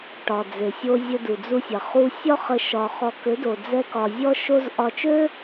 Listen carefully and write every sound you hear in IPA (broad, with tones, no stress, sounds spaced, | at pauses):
ʈ ɒ˨ d͡z e˨ sʲ o˧ zʲ ə˧ d u˨ d͡z u˧ sʲ ɐ˨ χ u˧ sʲ ɒ˦ χ ə˧ ʃ ɒ˧ χ ɔ˧ k ø˨˦ d o˨ d͡z ɛ˦ k ɒ˧ zʲ ɔ˦ ʃ o˦ z ʔ ɒ˧ t͡ʃ ø˦